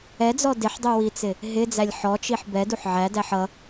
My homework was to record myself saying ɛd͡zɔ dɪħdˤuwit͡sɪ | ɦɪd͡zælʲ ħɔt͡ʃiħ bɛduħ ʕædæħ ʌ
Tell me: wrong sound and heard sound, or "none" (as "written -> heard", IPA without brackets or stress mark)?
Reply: none